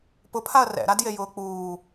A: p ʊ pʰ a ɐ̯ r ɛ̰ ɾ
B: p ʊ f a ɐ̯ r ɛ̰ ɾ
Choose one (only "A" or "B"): A